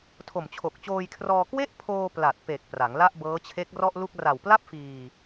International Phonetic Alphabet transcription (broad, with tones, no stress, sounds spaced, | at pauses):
tʰ o˨˩ m t͡ɕʰ o˨˩ k̚ t͡ɕ oː˧ j kʰ r ɔː˧ k w e˥˩ ʔ pʰ oː˧ p l a˨˩ t̚ p e˨˩ k̚ p r a˩˦ ŋ l a˥˩ ʔ b ɤː˦˥ t͡ɕʰ e˦˥ k̚ r ɔ˥˩ ʔ l u˥˩ k̚ r a˨˩ w p l a˥˩ p̚ f iː˧